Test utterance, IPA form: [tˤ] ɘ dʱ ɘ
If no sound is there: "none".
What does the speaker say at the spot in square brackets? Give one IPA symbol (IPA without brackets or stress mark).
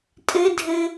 tʼ